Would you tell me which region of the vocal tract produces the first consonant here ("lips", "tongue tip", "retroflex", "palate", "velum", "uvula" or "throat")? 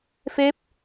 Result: lips